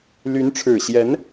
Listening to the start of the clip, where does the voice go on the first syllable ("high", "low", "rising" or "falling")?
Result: rising